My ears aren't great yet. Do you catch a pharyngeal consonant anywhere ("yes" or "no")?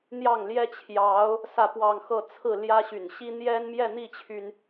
no